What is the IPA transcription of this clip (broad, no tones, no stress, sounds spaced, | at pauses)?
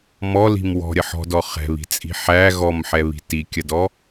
m ɔ l i̤ m w ɔ̤ ɾʲ ɐ ħ ɔ̤ d ɔ χ ɛ̤ β i̤ t͡sʼ i̤ ħ æ ɣ ɔ m ħ ɛ β i̤ t i kʲ ɐ d ɔ